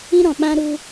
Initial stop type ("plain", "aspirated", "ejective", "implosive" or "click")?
implosive